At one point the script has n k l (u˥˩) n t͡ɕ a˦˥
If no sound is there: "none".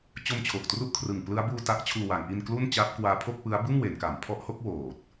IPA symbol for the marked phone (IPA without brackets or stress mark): u˥˩